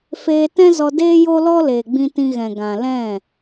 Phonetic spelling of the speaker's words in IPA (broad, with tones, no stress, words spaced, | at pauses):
feː˧tɛ̃˦zɔ˧deː˦ jo˦lɔ˦leː˨ɡ͡bĩ˧ tĩ˧ɣɛ̃˨ ɡã˨ lɛ̃˦˨